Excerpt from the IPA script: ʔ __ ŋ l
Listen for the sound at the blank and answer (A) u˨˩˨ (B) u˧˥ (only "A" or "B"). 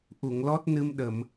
A